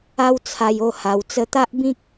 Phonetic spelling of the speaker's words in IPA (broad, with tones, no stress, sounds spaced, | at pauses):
a˦ w t͡sʰ a˧ j o˥˧ h a˧ w t͡s ə˧ t̪ a˦ ʔ b ĩ˦ k̚